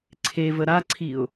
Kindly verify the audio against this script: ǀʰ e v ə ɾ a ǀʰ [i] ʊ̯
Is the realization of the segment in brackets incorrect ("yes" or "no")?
no